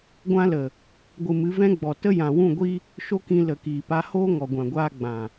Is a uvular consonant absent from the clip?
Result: yes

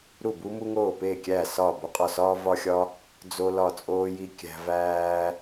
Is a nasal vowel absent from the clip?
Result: yes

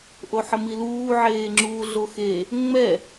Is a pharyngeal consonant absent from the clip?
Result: no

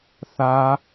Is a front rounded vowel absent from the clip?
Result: yes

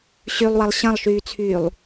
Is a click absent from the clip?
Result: yes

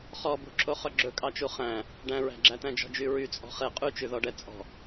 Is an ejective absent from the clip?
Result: no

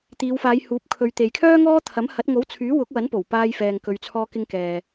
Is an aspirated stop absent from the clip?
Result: no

